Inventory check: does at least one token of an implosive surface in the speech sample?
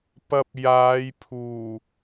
no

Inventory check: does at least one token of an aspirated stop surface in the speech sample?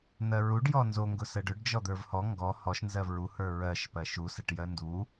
no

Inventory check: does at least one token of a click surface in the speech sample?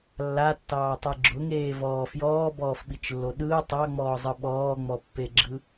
yes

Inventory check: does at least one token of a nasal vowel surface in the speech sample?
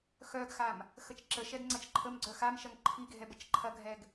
no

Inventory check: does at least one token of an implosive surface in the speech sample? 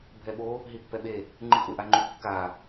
yes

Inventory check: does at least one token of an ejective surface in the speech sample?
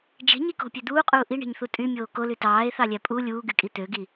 yes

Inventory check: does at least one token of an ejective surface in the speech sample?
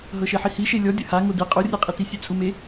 yes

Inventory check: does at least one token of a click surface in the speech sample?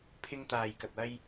no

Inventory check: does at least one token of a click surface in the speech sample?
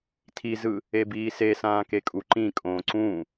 yes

